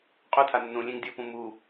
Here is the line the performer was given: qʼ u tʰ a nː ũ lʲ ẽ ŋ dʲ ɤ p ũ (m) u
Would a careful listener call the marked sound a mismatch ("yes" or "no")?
no